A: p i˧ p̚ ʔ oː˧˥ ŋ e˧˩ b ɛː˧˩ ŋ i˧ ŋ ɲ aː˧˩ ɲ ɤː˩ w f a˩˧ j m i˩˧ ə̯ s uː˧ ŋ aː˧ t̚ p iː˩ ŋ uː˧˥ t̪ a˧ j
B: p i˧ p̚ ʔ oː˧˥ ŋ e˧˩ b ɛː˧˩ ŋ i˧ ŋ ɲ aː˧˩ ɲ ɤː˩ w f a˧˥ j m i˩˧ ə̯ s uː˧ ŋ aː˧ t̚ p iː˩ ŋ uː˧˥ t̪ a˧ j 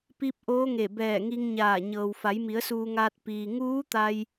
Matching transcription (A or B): A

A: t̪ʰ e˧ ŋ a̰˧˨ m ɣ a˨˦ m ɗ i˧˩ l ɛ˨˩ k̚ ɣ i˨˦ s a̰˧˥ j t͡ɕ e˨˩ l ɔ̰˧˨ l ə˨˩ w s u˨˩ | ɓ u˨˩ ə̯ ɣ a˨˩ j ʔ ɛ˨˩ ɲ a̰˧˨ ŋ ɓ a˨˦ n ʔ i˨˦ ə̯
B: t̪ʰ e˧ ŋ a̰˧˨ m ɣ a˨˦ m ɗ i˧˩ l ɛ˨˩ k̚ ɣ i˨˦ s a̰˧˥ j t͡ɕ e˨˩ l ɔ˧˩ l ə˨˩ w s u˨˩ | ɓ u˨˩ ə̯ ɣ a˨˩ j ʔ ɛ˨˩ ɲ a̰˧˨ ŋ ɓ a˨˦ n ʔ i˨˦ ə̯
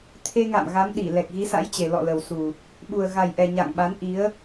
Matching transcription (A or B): A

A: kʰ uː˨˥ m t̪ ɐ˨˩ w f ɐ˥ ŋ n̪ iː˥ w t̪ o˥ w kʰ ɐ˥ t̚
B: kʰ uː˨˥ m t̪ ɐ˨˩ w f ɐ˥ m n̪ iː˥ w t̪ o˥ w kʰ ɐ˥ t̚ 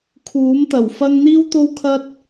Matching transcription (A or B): A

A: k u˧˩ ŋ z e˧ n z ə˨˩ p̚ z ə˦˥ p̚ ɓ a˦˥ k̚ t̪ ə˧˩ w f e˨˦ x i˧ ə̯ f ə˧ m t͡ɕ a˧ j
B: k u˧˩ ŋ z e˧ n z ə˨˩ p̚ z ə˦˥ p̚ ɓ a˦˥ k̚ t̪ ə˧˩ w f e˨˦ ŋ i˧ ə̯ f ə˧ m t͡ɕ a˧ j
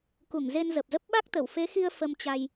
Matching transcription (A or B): A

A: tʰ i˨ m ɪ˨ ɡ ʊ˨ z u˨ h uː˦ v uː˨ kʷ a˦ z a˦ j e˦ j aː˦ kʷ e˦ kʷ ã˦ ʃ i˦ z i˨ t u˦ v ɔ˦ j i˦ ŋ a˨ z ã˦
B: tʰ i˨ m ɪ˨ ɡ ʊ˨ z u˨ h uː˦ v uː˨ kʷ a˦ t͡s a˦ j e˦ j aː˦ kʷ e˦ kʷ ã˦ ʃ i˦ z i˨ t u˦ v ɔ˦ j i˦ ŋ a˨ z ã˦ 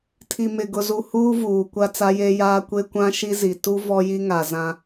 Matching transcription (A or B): B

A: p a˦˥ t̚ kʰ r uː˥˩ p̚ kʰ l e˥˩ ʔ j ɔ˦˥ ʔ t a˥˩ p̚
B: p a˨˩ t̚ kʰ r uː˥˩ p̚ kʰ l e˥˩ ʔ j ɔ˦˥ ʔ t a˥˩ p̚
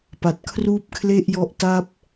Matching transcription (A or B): B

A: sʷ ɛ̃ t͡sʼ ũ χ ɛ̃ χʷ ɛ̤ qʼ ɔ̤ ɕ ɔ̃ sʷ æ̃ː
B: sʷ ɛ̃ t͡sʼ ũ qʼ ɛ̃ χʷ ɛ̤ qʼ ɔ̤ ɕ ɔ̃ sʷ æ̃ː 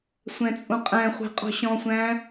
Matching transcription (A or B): B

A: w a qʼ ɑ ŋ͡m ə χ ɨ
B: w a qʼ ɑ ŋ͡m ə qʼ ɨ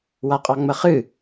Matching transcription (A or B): A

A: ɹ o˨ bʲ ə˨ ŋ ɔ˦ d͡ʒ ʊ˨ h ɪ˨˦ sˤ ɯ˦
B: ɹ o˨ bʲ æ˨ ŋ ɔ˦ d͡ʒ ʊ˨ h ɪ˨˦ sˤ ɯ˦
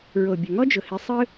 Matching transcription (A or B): A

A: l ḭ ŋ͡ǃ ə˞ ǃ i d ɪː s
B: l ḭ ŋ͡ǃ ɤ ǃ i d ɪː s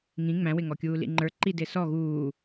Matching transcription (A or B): A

